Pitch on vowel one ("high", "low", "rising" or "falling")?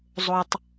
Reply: low